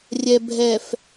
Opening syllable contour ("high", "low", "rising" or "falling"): low